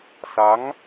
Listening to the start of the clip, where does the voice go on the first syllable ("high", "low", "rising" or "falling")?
rising